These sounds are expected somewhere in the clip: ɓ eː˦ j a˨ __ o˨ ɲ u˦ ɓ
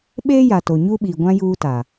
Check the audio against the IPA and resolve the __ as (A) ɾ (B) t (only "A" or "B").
B